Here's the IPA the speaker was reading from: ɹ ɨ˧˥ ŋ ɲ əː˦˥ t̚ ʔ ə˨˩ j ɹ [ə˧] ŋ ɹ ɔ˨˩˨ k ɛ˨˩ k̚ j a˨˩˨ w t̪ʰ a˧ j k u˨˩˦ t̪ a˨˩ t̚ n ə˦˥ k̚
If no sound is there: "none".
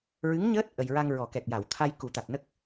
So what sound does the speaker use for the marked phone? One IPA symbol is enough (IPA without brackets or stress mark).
a˧